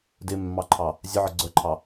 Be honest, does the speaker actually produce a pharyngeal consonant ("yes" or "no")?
yes